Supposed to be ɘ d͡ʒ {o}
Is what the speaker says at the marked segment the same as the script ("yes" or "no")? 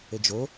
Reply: yes